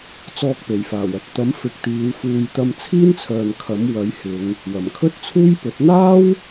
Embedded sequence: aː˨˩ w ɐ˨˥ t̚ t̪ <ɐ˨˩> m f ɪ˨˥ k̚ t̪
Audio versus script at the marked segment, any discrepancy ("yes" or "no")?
yes